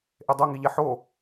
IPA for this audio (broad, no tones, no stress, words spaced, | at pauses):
ʔedˤoŋiʎɛ ħo